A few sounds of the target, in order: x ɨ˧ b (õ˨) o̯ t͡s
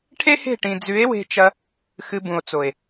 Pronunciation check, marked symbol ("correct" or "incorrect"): incorrect